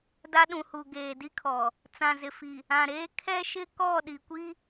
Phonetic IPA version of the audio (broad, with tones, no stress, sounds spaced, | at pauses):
d a˦ ɗ ũ˨ h u˨ ɡ eː˨ d i˦ kʰ ɔ˨ | t͡s ã˨ z ɪ˨ f i˨ | ã˨ ɾ eː˦ kʰ ɛ˦ ʃ ɪ˦ k ɔ˦˨ ɗ i˨ kʷ i˦